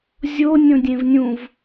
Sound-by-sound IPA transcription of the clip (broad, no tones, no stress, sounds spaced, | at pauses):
zʲ o nʲ õ dʲ ẽ v nʲ ũ v